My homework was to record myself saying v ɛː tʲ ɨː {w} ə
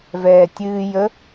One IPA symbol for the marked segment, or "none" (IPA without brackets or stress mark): j